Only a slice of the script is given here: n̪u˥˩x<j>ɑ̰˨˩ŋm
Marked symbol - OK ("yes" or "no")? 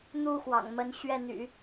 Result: no